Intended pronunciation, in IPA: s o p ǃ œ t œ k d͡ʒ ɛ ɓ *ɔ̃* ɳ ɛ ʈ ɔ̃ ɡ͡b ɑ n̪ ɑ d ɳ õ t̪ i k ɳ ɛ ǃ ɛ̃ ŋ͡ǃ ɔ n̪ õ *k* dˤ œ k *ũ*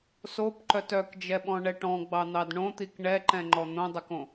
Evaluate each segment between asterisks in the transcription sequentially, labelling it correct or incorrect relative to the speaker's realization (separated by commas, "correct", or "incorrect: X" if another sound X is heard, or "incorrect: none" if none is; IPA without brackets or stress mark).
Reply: correct, incorrect: none, incorrect: õ